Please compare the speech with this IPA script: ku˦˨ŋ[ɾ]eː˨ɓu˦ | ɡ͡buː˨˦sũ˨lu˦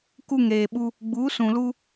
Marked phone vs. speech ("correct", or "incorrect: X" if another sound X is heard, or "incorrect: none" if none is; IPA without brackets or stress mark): correct